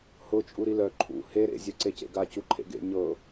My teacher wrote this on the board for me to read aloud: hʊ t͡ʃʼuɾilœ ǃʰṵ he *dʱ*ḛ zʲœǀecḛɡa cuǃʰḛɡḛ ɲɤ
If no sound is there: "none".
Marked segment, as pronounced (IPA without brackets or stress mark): ɾ